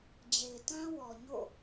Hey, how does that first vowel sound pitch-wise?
low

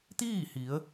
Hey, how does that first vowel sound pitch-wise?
falling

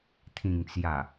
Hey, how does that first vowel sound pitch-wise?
low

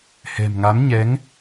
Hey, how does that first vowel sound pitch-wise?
low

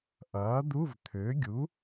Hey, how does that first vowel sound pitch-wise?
rising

